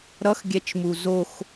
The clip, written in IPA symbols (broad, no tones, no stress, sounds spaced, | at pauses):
ɾ ʌ x ɡʲ ɛ t͡ʃ m u z o x